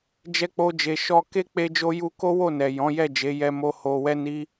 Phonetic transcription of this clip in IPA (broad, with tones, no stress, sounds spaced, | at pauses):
d͡ʒ ɛ˧ k͡p o˧ d͡ʒ e˨ ʃ ɔ˧ k e˦ k͡p e˦ d͡ʒ o˦ j u˦ k o˦ w o˦˨ n ɛ˨ j ɔ̃˨˦ j ɛ˦˨ d͡ʒ e˨˦ j ɛ˧ m o˧ h o˧ w ɛ˦ n i˦